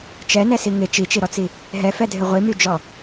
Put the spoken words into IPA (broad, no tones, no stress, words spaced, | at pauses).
t͡ʃɛnɛsi ŋɪ t͡ʃit͡ʃiɾɔt͡si | ɦɛfɛdʱɪ ʁʷimyd͡ʒɔ